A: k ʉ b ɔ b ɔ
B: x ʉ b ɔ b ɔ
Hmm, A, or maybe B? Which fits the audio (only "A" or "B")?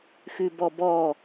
B